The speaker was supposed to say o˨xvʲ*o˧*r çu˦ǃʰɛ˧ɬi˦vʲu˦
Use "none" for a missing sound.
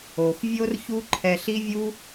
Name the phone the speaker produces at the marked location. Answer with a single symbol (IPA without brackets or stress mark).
o˦